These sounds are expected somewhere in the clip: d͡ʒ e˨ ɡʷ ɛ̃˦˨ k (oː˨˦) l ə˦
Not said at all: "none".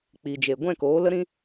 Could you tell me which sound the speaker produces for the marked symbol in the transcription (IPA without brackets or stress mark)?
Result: oː˨˦